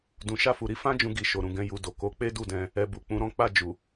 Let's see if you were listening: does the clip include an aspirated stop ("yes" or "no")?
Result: no